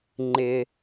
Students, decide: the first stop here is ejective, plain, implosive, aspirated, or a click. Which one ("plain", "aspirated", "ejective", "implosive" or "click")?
click